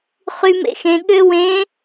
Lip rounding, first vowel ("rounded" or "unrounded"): rounded